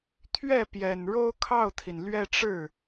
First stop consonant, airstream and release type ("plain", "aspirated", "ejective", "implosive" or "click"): aspirated